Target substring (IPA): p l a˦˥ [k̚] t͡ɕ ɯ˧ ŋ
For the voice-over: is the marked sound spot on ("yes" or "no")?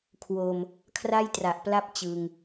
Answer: no